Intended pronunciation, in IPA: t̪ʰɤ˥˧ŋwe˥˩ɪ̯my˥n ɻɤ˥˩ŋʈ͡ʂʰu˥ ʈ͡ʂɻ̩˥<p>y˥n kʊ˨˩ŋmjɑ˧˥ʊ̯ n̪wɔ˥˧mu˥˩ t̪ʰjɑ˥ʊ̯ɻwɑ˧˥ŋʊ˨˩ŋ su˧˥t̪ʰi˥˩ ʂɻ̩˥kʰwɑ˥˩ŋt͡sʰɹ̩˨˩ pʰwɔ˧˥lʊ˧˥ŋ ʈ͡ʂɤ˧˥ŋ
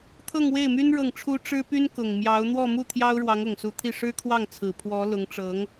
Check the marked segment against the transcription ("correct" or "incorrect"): correct